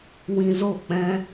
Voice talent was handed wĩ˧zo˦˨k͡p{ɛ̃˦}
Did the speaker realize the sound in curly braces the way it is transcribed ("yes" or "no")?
yes